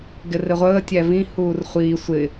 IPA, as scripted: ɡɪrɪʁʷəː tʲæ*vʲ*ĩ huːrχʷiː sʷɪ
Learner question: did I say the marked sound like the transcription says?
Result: no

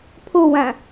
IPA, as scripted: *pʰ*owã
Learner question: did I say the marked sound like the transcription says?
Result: yes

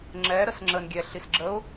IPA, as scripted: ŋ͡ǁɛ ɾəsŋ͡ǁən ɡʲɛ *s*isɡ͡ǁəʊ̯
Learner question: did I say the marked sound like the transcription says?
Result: no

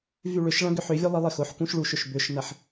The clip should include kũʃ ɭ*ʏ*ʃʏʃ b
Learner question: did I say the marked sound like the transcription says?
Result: no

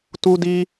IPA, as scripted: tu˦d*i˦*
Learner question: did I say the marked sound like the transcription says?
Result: yes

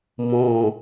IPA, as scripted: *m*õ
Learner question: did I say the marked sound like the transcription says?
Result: yes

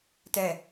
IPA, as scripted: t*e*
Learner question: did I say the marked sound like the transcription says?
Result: no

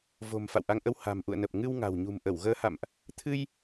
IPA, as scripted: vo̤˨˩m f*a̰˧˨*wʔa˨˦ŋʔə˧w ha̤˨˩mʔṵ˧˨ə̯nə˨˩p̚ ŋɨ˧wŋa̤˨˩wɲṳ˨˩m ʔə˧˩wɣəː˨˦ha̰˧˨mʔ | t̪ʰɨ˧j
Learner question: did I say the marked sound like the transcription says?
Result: yes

